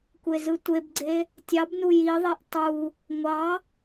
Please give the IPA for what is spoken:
kʷ e z ɯ tʷ e b ɡ͡ǀ e | tʲ ɑ b n u j i ðˤ i ʔ tˤ u | ŋʷ ɑ

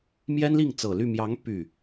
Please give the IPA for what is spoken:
m j ɛ˥ n l i˥˩ ŋ t͡s ɤ˨˩ l y˥˩ m j ɑ˧˥ ŋ p y˥˩

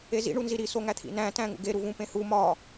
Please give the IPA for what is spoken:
e z ḭ ɳ u n z i ɾ i s o ŋ æ t̪ʰ ḭ n æ̃ t æ̃ ŋ ṵ ɡ e ɾ u v ũ p ẽ h u m ɒ

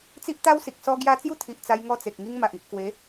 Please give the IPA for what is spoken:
t͡s i˦ ʔ t̪ a˦ w s i˨ k̚ s ɔ˦ ɡ j a˧ t͡s j u˦ t̪ʰ i˨ ʔ t͡s a˧ j ŋ ɔ˦ t͡s e˨ k̚ ŋ i˦ ŋ m a˨ ʔ i˨ ʔ k w e˨˦

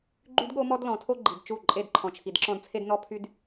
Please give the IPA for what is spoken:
ɡ͡ǃ y˦ d ɠ o˦ m ɔ˦ d l ɔ̃˨ tʰ o˦ ɡ͡ǃ i˨ d t͡ʃ u˦˨ ǃʼ e˦˨ d ǃʰ ɔ̃˨ t͡ʃʰ i˨ d ǁ ɔ̃˦ d t͡sʰ e˦ d n ɔ˦ pʰ y˦ d

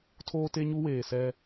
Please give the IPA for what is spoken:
tʰ oː˦ t e˦ ɲ u˦ w eː˨ s ɛ˦

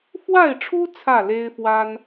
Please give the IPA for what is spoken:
f w a˥˨ ɪ̯ ʈ͡ʂʰ u˦ t͡sʰ ä˥˨ l e˦ ɪ̯ f w a˦ n

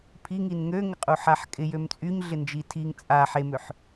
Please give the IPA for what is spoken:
pʰ i ŋ i n ŋ ø ŋ ɪ qʼ u ħ a ħ kʼ ɪ j ø m t͡sʼ y ɲ ɮ ɪ n d͡ʒ i tʰ i ŋ t͡sʼ a ħ e m ø ħ

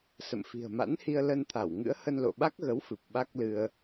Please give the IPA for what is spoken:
s ə̰˧˨ m f i̤˨˩ ə̯ m a̰˧˥ n h i˧ ə̯ l ə˧ n t̪ʰ a˧˩ w ŋ ɨ̰˧˥ ə̯ h ə˧ n l o̰˧˨ ɓ a˦˥ k̚ ɣ ə˨˦ w f ɨ˨˩ p̚ ɓ a˦˥ k̚ l ɨ˧ ə̯

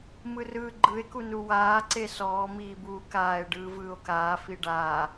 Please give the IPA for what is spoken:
m ɯ r ɯː ɡ͡ǃ ɯ e̯ k u n u w aː ǀ e s ɔː m iː b uː k aː e̯ ɖ ɯː v ɯː o̯ k aː f i ɖ a

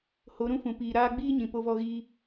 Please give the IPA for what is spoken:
h o˨˦ ɾ ũ˦ f ũ˨ p iː˨ ɾ aː˧ ɡ͡b iː˦ ɲ ĩ˨ p o˧ v ɔ˧ ɣ iː˧

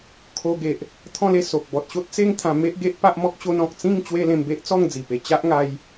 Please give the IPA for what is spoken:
kʰ o˧ ɡ e˨ ʔ | t̪ʰ ɔ̃˥˧ l e˥˧ s o˨ k̚ b ɔ˨ t̚ ɕ o˦ t̚ t͡s e˦ ŋ t̪ʰ ã˧ m e˦ ʔ ɡ e˦ ʔ p a˦ ʔ m ɔ˦ k̚ ɕ o˧ n ɔ̃˨ k̚ t͡s ĩ˥˧ ŋ t͡ɕ w e˦ l ẽ˧ m b e˦ ʔ t͡s ɔ˥˧ ŋ d͡z i˨˩ p e˨˩ t͡ɕ a˦ ʔ ŋ a˧ j

